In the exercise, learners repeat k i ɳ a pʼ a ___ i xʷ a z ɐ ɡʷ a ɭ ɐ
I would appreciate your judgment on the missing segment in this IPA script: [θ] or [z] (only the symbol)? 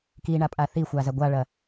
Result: θ